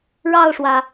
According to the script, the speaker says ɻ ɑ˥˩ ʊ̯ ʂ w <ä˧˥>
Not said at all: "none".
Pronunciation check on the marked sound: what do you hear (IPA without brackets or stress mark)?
ä˩